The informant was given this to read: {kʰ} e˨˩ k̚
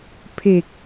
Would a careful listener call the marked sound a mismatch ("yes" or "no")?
yes